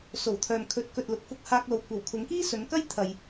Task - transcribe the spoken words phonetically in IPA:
s o˨˩ w t̪ʰ œː˨ m kʰ ɵ˨˥ t̚ k ɵ˨ t̚ l ʊ˨˥ k̚ f ʊ˧ k̚ h aː˧ k̚ l o˨ w kʷ ɐ˨˩ w kʰ ʊ˨˧ ŋ k iː˥ s ɵ˨˧ n k ɐ˥ j t̪ʰ ɐ˨ j

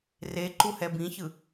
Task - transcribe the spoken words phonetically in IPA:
r e ǃ u h ɛ b ĩ ç ɯ

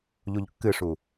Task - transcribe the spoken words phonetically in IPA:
ʎ u ʎ kː ɨ ʂ u

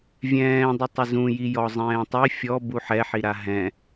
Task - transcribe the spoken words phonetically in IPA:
vʲ ɛ̃ː dˤ ɪ tˤ ɪ z ũ j i j ɔ zˤ ɛ̃ː tˤ i fʲ ɔ b u ħ ɛ ħ i ɾ a ɦ ɛ̃

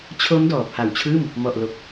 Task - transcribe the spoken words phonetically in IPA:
t͡ɕʰ o˦˥ m d ɔː˨˩ pʰ a˨˩ w t͡ɕʰ ɯː˥˩ m | m ɔ˨˩ ʔ l o˨˩ k̚

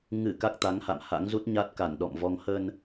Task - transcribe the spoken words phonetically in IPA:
ŋ ɨ˧˩ k a˦˥ k̚ t̪ a˨˦ ŋ h a̰˧˨ m h a̰˧˥ ŋ z u˦˥ t̚ ɲ a˦˥ t̚ k a˧˩ n ɗ ɔ̰˧˨ m v ɔ˧ ŋ h ə˧ n

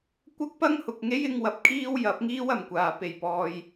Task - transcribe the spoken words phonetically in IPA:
kʷ ɐ˥ k̚ p ɐ˥ ŋ h ʊ˨ k̚ ŋ e˥ j ɪ˧ ŋ w ɐ˨˥ p̚ kʰ iː˥ w j ɐ˨˥ p̚ ŋ iː˥ w ɐ˨ m kʷ aː˨ p e˨˩ j p ɔː˨ j

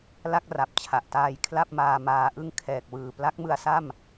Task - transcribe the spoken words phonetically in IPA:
l a˥˩ k̚ r a˨˩ p̚ t͡ɕʰ a˨˩ ʔ t aː˧ j kʰ l a˥˩ p̚ m aː˧ m aː˧ ʔ ɯ˥˩ ŋ kʰ ɛː˨˩ k̚ w ɯː˨˩ p l a˦˥ k̚ m ɯ˧ a̯ s a˥˩ m

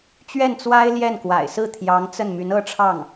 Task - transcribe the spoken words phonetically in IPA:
t͡ɕ ɥ ɛ˥˩ n t͡s w a˥ ɪ̯ l j ɛ˥˩ n k w a̰˨˩ ɪ̯ s ɹ̩˥˩ t̪ʰ j ɑ˧˥ ŋ t͡s ə˥˩ n m y˧˥ n ɤ˥ ʈ͡ʂʰ ɑ˥˩ ŋ

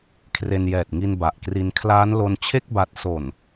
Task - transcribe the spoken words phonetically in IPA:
kʰ r e˧ n j ɛː˨˩ t̚ ŋ i˧ n b a˨˩ ʔ k r i˧ n kʰ l aː˦˥ n l o˧ n t͡ɕʰ e˥˩ k̚ b a˦˥ t̚ s o˨˩ n

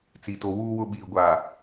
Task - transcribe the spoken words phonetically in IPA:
t͡s i˨ t o˨ w uː˨ w ʊ˨ ɓ iː˨ ɡʷ aː˨

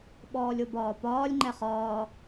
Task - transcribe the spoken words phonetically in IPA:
ɓ ɔː lʲ o b ɒː p ɒː lʲ ŋ͡ǃ ɛ χ ɒː

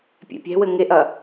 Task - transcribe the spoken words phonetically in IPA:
pʲ ɛ̰ pʲ ɛ̤ w ɘ ŋ e ʔ ɐ

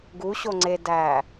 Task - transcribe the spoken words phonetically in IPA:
ɡ u ɕ o ŋ͡ǀ e d æ

